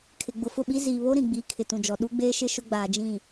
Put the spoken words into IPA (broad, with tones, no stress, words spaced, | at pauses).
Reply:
kʰɪ˨ɡ͡bʊ˨fʊ˦˨ɓi˦ ziː˨βo˦ɾĩ˨ ɡ͡biː˨˦kʰɪ˨tũ˨d͡ʒɔ˨ ɗu˦ɡ͡beː˦ʃɪ˦ ʃʊ˦ɡ͡baː˨d͡ʒĩ˦˨